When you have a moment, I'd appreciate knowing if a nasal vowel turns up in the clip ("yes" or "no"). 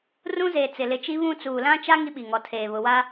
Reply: yes